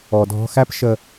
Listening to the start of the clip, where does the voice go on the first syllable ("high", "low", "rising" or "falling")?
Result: low